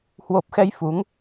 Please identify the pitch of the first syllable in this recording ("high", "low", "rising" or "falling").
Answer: low